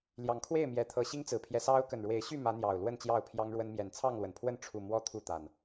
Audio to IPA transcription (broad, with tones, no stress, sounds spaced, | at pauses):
l j ɑ˨˦ ŋ kʰ w e˥˨ ɪ̯ m j ɛ˨˦ t̪ʰ ɤ˨˦ ɕ i˦ ŋ t͡s ɹ̩˨˩ pʰ j ɛ˦ s ɑ˦ ʊ̯ k ə˨˩ n ɻ w e˨˦ ɪ̯ ɕ y˥˨ m ä˨˦ n̪ j ɑ˨˩ ʊ̯ l w ə˥˨ n t͡ɕ j ɑ˥˨ ʊ̯ pʰ j ɑ˦ ŋ ɻ w ə˦ n m j ɛ˨˩ n t͡sʰ ɑ˥˨ ŋ l w ə˩ n pʰ w ə˥˨ n ʈ͡ʂʰ u˥˨ m w ɔ˦ t̪ʰ u˥˨ t̪ a˨˩ n